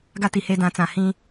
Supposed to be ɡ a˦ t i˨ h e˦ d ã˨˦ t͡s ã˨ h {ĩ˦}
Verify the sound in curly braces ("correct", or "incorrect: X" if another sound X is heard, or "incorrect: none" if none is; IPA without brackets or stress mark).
correct